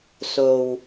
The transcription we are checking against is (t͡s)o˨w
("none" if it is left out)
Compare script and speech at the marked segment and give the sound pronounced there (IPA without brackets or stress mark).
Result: s